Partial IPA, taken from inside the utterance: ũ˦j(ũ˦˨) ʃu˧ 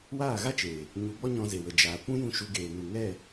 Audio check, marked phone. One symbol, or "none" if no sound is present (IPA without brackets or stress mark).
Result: ũ˦˨